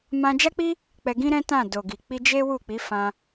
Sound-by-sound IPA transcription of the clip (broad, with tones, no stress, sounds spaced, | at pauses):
m ã˧ d͡ʒ a˦ k͡p i˦ | k͡p ɛ˧ ɡ ĩ˦ ɾ ɛ̃˦ t ã˦˨ d o˨ ɡ i˨ k͡p i˧ d͡ʒ e˦ w u˦˨ k͡p i˨˦ f ã˧